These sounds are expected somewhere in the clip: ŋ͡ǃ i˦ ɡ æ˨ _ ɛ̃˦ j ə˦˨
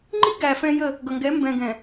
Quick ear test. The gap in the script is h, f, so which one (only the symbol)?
f